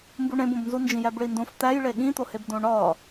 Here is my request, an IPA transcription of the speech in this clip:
m b u ɳ ẽ b õ b n z u n d͡ʒ ĩ j æ b ɭ i n d õ f t̪ æ j ɭ e ɠ ĩ t̪ o h e b d õ ɳ ɒ

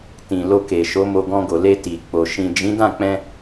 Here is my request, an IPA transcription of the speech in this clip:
t ĩ˨ l o˧ k e˨ ʃ o˨˦ m o˧ ɡ ɔ̃˧ ɡ o˨ l e˧ t i˨ k͡p o˨ ʃ ĩ˨ d͡ʒ ĩ˨˦ d ã˦˨ k͡p ɛ̃˧

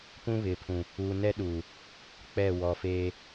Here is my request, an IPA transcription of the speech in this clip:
p ũ˦ β ɪ˨ pʰ ũ˨ | uː˨ n ɛ˦ ɗ uː˨ | k͡p ɛ˦˨ w ɔ˨ f eː˦

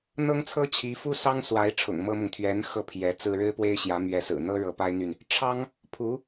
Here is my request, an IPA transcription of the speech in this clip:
n̪ ɤ˥ ŋ t͡sʰ ɤ˥ t͡ɕʰ i˧˥ f u˥ s ɑ˥ ŋ s w a˧˥ ɪ̯ ʈ͡ʂʰ ʊ̰˨˩ ŋ m ɤ˥ m ʊ˨ ŋ t̪ʰ ɥ ɛ˧˥ n x ɤ˥˩ pʰ j ɛ˧˥ t͡s ɹ̩˥ ɻ ɻ̩˥ p w e˥ ɪ̯ ɕ j ä˧˥ m ɥ ɛ˧˥ s ɹ̩˨˩ n̪ ɤ˥ ɻ ɤ˧˥ p a˥ ɪ̯ n̪ y˨ n | ʈ͡ʂʰ ɑ˥ ŋ | pʰ u˧˥

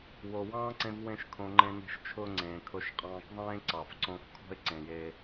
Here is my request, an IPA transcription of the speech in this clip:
w o˨ w ɑ̃ː˦ ǀ ẽ˧ v w ẽ˦ ʃ kʰ õ˧ ŋ͡ǃ ẽ˧ n e̤˧ ʃ t͡ʃʰ ʊː˧ ŋ͡ǀ ẽː˨ kʰ ʊ˧ ʃ qʼ ɑ̃ː˧ k ðˤ ẽː˦ ǀ ɑ˨ f ǀ õ˧ f kʰ ɔ̤˦ ɪ̯ ǀ ẽ˨ j e˧

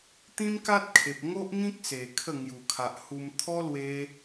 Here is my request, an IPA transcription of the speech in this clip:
t̪ ĩ˦ m k a˦ t̚ kʰ e˨ p̚ ŋ o˦ ʔ ŋ ĩ˦ k̚ s e˨˩ kʰ ə˥˧ ŋ j u˨˩ kʰ a˨ ʔ h u˧ m t̪ʰ ɔ˦ l w e˧

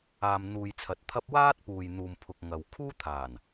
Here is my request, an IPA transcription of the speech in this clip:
aː˨ m n̪ uː˨ j t͡sʰ ɐ˨ t̚ t̪ʰ ɐ˥ p̚ w aː˥ t̚ p uː˨ j n̪ uː˨ m pʰ ʊ˨ k̚ ŋ ɐ˨ w kʰ uː˥ t̪ʰ aː˨˩ n

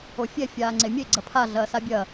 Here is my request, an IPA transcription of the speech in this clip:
o fʲ ɛ fʲ aː ŋ͡ǀ e mʲ e ɡ͡ǀ ɐ pʰ a ɮ ɐː s a bʲ ɐ

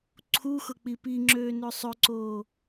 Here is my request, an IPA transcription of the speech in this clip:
ǀʰ u x ʊ k͡p i p i ŋ͡ǁ øː n ø sˤ ʏ ǀ oː

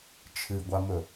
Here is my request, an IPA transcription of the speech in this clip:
t͡ʃʰ ɨ ɡʷ a m ɵ

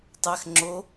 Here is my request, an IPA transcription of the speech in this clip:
tˤ æ x ŋ͡ǁ o

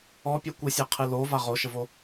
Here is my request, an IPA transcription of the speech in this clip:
ɔ pʲ a kʷ ɨ sʲ a qʰ ɨ l o v a ʁ o ʃ ə v o

